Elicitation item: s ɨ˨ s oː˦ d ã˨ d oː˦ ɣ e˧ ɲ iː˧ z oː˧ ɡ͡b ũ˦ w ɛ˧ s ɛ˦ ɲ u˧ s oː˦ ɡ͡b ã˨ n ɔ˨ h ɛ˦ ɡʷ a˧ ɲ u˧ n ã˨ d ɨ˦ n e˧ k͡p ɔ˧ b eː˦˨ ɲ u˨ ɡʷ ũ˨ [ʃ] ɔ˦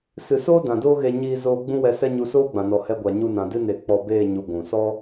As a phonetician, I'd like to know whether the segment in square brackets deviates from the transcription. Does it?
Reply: yes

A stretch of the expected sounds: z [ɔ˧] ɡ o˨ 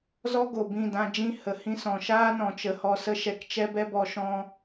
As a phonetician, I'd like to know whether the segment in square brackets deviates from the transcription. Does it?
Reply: yes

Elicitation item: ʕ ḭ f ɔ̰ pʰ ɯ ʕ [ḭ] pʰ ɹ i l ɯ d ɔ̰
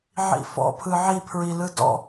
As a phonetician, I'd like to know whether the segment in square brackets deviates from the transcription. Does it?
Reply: yes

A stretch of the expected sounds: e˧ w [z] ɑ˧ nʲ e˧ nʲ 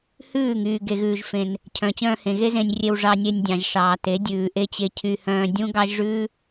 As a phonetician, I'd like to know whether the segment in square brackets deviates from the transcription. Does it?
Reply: yes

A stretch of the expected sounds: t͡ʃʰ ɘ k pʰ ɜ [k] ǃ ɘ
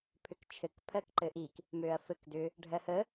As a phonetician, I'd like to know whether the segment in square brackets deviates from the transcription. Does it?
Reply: no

